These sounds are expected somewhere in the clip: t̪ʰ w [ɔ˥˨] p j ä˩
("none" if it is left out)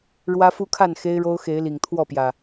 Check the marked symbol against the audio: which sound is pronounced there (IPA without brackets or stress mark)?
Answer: ɔ˥˨